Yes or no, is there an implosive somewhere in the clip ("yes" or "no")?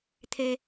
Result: no